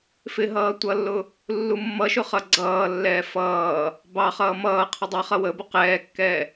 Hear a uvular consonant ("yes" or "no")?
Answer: yes